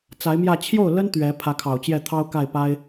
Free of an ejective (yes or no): yes